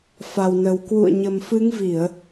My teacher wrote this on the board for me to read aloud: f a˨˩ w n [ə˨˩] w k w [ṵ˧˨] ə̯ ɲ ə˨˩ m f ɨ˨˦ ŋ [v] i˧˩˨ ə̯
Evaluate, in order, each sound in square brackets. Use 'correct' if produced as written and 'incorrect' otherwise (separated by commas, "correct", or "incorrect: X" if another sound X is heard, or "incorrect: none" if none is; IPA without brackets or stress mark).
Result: correct, correct, correct